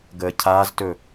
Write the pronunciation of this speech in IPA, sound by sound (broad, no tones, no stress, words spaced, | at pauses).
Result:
ɡəːcʰaːztɵ